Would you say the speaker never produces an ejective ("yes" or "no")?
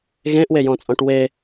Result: no